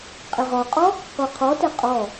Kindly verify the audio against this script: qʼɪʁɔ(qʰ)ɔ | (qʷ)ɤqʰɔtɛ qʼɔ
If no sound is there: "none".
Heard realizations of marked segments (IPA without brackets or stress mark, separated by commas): qʼ, qʷ